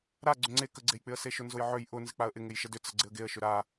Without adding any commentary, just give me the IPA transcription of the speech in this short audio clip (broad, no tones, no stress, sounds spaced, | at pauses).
ɾ a ɡ͡ǀ ʏ ŋ͡ǀ e k ə ɡ͡ǀ e j k͡p ɪ ə̯ s e ʃ ʊ n z ʊ j ʕ ø j ʔ ʊ n z ɪ k͡p a ə̯ ʔ ɪ ŋ e j ʃ ə d ʏ t͡s ə ɡ͡ǀ ɪ ə̯ ɡ e ə̯ ʃ ʏ ɾ a